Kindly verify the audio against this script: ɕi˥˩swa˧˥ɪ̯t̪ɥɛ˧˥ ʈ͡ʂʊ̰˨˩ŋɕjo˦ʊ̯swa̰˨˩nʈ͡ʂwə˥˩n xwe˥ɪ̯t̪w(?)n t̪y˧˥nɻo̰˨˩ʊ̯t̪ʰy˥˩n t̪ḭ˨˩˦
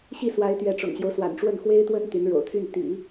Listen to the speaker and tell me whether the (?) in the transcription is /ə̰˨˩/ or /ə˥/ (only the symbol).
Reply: ə˥